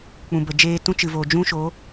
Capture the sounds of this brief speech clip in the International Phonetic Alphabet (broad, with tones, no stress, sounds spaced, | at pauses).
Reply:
k͡p ũ˨ b ə˨ d͡ʒ eː˧ t ũ˦ t͡ʃ ɨ˨ v o˨ d͡ʒ ũ˦ ʃ o˨˦